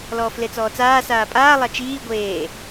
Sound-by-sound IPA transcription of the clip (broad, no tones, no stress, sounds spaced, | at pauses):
l ɔː f l e t͡s ɔː t͡s aː s aː pʼ aː lˠ a t͡ʃ iː ɡʷ eː